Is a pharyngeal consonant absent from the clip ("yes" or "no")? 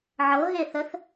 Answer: no